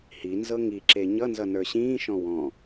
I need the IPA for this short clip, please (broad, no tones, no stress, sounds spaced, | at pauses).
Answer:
h i n z ɤ ŋ i ǁ e ɲ ʌ n z ʌ n ə˞ ɕ ĩː ʃ ɔ̃ w ɔ̃